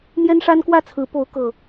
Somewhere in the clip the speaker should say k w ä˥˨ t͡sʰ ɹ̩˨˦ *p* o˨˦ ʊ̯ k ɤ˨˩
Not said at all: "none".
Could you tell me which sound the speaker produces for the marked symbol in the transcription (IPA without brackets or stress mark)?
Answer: p